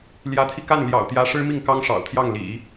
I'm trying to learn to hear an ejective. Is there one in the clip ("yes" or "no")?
no